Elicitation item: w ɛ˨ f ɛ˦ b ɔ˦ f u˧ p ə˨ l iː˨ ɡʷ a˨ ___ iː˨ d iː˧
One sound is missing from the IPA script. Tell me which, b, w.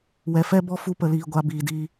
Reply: b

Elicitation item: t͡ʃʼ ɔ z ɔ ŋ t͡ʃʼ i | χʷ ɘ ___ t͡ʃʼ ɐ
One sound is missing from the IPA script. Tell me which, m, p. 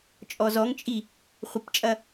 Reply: p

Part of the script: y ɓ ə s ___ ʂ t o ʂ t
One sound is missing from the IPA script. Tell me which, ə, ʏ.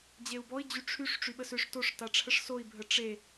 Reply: ʏ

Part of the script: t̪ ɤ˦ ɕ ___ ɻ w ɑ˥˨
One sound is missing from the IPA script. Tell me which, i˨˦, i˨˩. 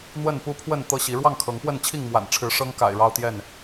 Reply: i˨˦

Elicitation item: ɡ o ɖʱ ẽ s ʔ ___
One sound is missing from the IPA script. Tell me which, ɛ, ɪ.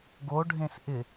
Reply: ɪ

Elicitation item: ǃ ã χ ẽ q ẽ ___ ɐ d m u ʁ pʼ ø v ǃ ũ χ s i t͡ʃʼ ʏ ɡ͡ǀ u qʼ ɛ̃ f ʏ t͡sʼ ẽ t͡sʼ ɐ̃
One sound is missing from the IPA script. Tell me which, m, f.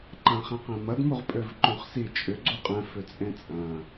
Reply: m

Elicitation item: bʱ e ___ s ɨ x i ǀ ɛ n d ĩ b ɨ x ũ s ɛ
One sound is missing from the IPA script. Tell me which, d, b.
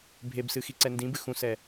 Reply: b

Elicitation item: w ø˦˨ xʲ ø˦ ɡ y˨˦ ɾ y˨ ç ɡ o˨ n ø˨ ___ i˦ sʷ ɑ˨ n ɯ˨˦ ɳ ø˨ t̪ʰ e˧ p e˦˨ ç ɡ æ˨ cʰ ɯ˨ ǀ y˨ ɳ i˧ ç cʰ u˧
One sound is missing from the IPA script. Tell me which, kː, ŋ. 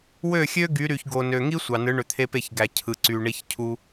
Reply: ŋ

